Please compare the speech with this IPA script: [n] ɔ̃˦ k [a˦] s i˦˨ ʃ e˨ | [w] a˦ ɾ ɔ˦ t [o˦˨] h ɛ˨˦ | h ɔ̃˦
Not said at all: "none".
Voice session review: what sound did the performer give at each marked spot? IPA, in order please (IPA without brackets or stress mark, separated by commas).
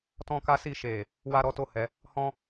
t, a˦, w, o˦˨